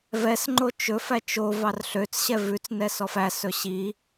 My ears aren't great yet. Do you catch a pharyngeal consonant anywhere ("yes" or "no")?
no